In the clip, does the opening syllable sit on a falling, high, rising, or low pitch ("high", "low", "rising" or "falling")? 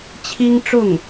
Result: high